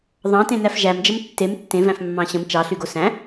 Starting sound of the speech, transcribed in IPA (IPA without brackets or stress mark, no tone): ðˤ